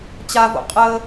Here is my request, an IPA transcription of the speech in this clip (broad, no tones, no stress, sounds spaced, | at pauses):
t͡ɕ a v o̰ qʼ ə